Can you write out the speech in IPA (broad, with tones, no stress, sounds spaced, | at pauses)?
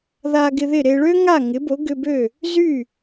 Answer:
ð a˧ ɡ ɪ˧ ð ɪ˥˩ ɾ e˧ ɭ ø˥ ŋ a˥˩ ŋ ɪ˩˥ b o˩˥ ɡ ʏ˧ b ø˥˩ | z y˥˩